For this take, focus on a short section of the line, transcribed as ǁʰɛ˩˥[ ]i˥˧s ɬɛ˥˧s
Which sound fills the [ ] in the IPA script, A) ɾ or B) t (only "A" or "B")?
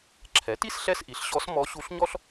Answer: B